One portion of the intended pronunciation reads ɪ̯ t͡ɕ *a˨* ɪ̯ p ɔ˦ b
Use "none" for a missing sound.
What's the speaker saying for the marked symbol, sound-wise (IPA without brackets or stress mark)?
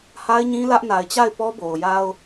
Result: a˦˨